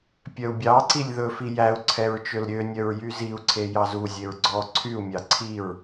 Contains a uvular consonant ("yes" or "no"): no